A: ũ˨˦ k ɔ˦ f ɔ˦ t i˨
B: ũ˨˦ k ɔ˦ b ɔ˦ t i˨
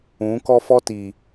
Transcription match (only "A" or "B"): A